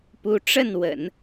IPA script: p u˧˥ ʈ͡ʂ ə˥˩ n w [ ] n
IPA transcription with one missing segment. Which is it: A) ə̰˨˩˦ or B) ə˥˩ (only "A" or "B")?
A